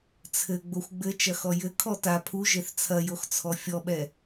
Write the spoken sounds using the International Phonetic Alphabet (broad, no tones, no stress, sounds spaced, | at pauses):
t͡sʰ ɘ ɡ͡b o xʷ ɡ͡b ɘ t͡ʃ ɐ x ɔ j ɘ kʰ ɔ t a pʰ u ʒ e θ t͡sʰ ɐ j o x t͡sʰ ɔ fʲ ɔ ɓ ɛ